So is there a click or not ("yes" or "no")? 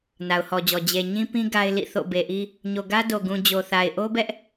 no